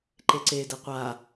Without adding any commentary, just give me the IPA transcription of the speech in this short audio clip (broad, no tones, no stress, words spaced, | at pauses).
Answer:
ǃeǀe dɛqʷa